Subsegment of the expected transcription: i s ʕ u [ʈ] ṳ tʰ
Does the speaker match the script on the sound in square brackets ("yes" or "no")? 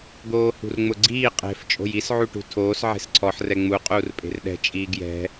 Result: yes